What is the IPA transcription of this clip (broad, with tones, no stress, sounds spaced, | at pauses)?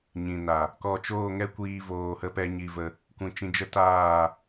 ɲ ĩ˨ n a˨ | k ɔ˧ t͡ʃ oː˦˨ ŋ ɛ˦ kʷ iː˧ v oː˧ h ə˦ p ɛ˦ ɲ i˧ v ə˧ | kʷ ĩ˨ t͡ʃ ĩ˧ d͡ʒ ə˦ t aː˦˨